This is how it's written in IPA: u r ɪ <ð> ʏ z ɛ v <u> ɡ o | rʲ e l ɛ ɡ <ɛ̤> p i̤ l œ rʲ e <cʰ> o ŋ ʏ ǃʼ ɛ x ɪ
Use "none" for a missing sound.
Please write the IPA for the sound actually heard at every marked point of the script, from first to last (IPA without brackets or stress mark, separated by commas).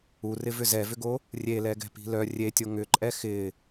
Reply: v, ʏ, ɛ̤, tʲ